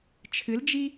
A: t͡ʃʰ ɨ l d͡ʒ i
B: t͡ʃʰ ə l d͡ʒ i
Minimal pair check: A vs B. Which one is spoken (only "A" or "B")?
A